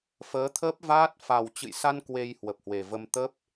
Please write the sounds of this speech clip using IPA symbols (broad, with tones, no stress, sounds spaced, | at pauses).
f əː˨˦ t̪ʰ əː˦˥ p̚ v aː˦˥ t̚ f a˨˩ w t͡ɕ ɨ̰˧˨ j s a˧ n k w e˧ j h w ə˨˩ p̚ h w e˨˩ v ə˧ m t̪ ə˦˥ p̚